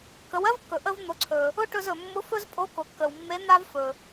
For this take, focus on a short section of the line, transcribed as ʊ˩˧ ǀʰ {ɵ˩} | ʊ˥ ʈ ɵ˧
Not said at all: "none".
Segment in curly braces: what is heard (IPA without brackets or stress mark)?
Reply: ɵ˩